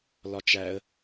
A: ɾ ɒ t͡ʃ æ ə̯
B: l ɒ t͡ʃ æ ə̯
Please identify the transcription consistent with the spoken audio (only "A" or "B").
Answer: B